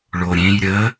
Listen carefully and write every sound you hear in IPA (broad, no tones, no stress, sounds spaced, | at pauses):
ɭ o ɾʲ ẽ j ɾʲ ə